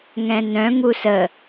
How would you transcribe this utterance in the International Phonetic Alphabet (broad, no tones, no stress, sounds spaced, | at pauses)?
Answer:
ŋ ɛ̃ n œ̃ ŋ u s ə